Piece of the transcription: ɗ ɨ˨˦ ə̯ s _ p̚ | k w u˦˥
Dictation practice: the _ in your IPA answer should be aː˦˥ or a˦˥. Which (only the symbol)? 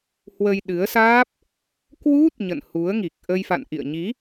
aː˦˥